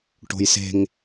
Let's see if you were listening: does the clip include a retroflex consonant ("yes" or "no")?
yes